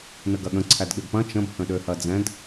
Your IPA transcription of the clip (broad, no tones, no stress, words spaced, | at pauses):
nəɡɐɠə̃ ǀʰædɠɪbpɐ̃ t͡ʃə̃b hə̃ɗøhɐd͡zɛ̃d